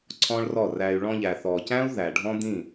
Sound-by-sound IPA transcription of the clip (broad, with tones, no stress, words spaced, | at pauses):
ǀʰɔ̃˦ɭrɔ˦˨ræ˧y̯ ɭɔ̃˧ʎæ˨θɔ˨cæ̃˦u̯ ðæ˨ɖʱɔ̃˦d̪ĩ˦˨